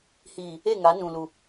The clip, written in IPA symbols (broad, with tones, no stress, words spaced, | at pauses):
hiː˨ | e˦˨ŋa˨˦ nũ˨lu˨